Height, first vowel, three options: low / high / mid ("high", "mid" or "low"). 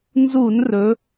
high